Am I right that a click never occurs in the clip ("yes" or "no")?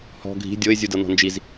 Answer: yes